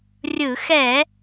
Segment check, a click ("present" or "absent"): absent